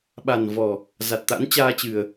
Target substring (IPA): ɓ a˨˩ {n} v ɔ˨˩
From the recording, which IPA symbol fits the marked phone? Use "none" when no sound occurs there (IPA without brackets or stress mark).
n